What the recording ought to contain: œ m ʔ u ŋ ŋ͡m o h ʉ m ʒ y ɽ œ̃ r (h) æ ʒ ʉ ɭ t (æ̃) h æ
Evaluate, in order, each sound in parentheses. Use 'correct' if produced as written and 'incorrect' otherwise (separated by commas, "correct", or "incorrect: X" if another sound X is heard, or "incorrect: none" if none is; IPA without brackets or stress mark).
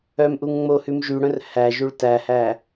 correct, incorrect: æ